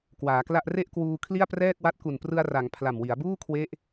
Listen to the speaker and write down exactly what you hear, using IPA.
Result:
k w aː˩˦ k l a˥˩ ʔ r e˥˩ ʔ k w uː˧ kʰ l i˥˩ a̯ p r ɛː˥˩ k̚ w a˦˥ t̚ k u˨˩ n p r ɯ˧ a̯ r a˩˦ ŋ pʰ l a˨˩ m w i˩˦ a̯ b uː˥˩ kʰ w e˦˥ ʔ

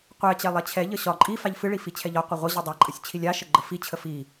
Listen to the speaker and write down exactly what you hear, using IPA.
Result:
qʷ ɛ t͡ɕ ɛ lˠ ɛ t͡ɕʰ ɛ ʎ ə ɕ ɒ ǃʼ i f a ʎ f ɨ ɭ i f i t͡ɕʰ ɛ ʎ ɒ qʷ ə ʁʷ ə ʑ ɨ dˤ ɛ ǃʼ ə sʲ t͡ɕʰ i lʲ a ʃ ə ɡ͡ǃ ə f i t͡ɕʰ ə f i

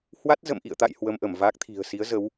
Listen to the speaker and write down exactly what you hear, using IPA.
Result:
h w a˦˥ t̚ z ə̰˧˨ m ʔ ḭ˧˨ ə̯ t̪ a̰˧˨ j h w ə˧ m ʔ ə˧˩ m v a˦˥ k̚ t̪ʰ i̤˨˩ ə̯ s i˨˦ ə̯ z ə˨˦ w

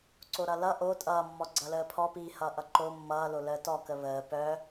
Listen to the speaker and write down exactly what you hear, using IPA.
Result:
ǀ o ɾ ʌ l ʌ ʔ o tʼ ʌː mː ɔ ɡ͡ǀ ʌ l əː pʰ ɔ p iː h ʌː ʔ ʌ ǃ o mː ʌː l o l əː t ɔ k ə β əː p œ

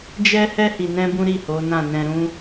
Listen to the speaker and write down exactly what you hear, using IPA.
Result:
d͡ʒ ɛ˦ h ɛ˦ h i˧ n ɛ̃˦ b ũ˦ ɾ i˦˨ h o˨˦ n ã˦˨ n ɛ̃˧ ɾ ũ˦

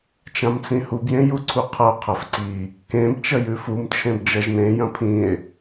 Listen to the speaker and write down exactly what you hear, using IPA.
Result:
t͡ʃ ã m t͡s ĩ h u b j ẽ j u ǀʰ u qʰ ɐ o̯ qʰ ɐ f ǀ i | k ẽ b t͡ʃ ɐ j ʉ f u m t͡ʃʰ ẽ b d͡ʒ ɐ ʒ n ẽ j ɐ̃ pʰ ĩ e̯

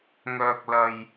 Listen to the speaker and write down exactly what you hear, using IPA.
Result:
ŋ œː˨ k̚ l ɐ˨ j

